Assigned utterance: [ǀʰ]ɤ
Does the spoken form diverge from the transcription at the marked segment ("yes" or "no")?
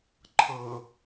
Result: yes